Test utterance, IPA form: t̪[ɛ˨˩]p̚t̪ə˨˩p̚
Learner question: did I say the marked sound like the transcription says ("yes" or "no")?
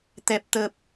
yes